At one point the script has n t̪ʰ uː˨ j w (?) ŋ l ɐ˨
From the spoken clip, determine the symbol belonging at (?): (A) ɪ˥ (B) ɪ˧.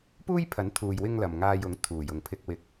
B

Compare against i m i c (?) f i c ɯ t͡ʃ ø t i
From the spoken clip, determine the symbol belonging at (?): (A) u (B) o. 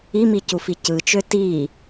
A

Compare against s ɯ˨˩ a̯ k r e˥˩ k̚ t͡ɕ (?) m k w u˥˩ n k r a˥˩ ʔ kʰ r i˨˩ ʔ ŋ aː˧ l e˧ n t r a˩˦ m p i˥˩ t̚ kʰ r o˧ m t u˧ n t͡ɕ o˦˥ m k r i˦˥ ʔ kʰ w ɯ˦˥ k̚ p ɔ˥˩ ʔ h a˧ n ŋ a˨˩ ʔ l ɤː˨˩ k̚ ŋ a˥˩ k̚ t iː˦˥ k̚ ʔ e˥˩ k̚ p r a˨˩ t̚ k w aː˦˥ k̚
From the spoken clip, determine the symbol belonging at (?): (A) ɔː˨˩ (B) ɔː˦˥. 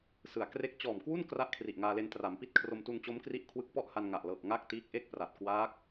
A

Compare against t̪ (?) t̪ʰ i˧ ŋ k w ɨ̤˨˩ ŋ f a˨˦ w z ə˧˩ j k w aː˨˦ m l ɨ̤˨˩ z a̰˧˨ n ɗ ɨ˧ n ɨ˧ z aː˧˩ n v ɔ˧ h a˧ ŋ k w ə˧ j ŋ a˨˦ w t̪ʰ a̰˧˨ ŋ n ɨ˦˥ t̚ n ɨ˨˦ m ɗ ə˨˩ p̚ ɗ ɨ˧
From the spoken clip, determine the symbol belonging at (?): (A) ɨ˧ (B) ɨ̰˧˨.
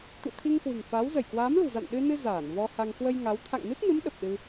B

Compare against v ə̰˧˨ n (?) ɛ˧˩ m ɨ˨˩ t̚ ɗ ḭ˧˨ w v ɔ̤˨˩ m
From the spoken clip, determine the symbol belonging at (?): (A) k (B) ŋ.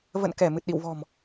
A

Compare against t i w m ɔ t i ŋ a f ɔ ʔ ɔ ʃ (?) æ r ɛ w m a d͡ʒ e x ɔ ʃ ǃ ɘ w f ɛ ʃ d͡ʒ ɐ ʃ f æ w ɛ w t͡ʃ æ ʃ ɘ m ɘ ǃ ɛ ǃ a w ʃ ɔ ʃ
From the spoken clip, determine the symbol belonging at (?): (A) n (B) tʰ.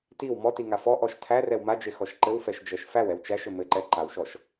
B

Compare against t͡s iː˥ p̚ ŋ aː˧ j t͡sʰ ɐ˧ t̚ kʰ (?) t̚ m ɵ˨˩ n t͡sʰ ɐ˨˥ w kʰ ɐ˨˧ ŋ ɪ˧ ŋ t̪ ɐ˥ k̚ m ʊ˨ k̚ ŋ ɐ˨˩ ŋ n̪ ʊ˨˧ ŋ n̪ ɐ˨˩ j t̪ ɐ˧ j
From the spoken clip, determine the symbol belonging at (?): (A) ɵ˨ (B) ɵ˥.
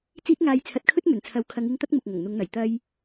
B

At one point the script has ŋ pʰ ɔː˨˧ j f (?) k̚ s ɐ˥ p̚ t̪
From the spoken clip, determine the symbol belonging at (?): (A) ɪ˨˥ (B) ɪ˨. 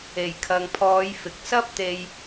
B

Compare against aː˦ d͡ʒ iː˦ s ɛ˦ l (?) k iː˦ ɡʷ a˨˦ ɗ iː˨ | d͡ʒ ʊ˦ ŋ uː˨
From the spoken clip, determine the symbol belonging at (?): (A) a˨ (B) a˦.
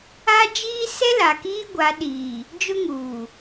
A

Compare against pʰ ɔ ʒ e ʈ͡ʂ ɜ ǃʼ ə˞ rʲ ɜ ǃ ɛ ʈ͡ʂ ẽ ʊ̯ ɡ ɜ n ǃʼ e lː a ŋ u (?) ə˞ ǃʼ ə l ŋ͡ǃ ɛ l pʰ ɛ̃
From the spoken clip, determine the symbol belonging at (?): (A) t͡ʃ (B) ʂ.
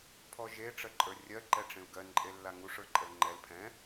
B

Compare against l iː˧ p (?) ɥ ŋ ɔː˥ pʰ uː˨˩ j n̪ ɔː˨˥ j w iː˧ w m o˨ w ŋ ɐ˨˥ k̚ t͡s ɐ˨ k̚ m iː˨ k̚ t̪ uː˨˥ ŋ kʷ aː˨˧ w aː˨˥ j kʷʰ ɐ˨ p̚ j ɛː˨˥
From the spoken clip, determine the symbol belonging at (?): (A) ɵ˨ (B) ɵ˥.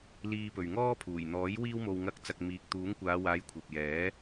A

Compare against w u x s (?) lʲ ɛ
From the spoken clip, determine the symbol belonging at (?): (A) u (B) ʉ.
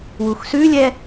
B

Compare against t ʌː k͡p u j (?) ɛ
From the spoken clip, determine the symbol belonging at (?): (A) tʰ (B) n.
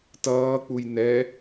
B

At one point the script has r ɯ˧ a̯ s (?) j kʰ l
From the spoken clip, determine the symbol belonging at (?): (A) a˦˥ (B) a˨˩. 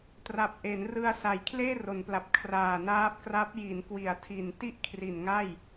B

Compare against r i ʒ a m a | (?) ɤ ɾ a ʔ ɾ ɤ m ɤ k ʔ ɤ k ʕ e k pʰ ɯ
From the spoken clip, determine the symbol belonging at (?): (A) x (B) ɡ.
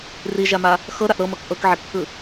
A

